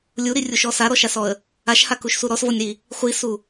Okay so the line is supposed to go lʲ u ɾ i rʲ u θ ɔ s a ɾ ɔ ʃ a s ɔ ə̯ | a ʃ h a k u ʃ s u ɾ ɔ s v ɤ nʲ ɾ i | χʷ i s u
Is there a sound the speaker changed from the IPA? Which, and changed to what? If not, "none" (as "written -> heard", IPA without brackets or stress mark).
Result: θ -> ʃ